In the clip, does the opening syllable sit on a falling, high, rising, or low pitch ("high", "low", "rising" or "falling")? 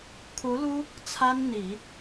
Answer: rising